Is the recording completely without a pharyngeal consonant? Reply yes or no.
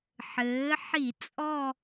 no